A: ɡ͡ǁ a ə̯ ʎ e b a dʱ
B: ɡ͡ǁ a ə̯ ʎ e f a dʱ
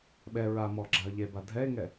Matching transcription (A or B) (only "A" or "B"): A